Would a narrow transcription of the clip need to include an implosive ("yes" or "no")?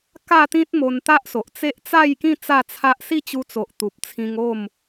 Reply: no